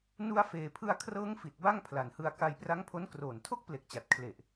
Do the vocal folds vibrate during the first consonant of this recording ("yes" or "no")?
yes